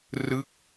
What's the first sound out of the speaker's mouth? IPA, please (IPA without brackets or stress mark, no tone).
r